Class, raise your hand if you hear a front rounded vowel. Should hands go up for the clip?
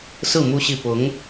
no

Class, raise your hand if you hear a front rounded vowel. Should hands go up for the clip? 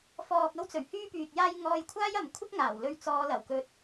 yes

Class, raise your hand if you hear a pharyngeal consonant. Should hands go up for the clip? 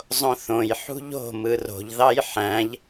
yes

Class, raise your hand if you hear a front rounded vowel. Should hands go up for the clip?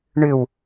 yes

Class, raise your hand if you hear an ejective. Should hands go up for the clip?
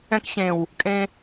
yes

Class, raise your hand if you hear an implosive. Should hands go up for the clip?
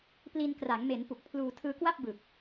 no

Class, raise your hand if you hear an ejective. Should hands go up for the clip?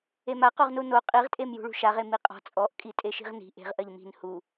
yes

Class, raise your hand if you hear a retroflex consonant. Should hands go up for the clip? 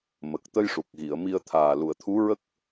yes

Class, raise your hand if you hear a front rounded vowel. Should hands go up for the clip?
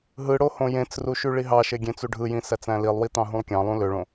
yes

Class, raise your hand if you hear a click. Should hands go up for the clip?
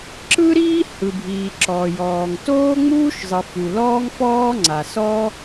yes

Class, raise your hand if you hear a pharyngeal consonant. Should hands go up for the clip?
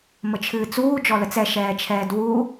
no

